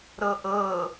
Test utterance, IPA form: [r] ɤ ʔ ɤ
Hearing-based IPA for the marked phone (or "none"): ɾ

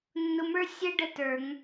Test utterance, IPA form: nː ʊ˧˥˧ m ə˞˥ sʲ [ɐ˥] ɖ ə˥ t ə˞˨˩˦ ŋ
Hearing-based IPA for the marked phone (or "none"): ə˥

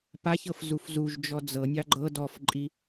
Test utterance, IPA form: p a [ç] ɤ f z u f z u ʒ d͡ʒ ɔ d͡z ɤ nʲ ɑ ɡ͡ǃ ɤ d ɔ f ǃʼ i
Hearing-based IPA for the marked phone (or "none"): ç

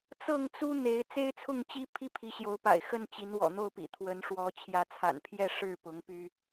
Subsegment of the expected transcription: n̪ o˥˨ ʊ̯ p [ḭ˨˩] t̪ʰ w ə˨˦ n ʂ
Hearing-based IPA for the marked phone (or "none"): ḭ˨˩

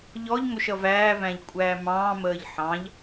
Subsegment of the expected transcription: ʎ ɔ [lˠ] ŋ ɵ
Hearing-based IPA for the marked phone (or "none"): ʎ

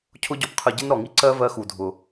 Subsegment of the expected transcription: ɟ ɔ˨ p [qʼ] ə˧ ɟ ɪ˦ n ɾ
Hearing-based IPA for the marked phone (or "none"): qʰ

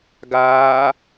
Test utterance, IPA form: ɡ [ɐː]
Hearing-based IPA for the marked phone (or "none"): aː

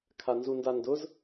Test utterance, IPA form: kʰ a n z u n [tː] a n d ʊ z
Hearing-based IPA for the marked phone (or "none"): d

